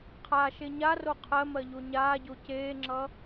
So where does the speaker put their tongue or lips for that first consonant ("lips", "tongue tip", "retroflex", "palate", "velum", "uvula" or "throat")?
uvula